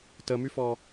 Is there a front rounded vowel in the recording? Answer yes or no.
yes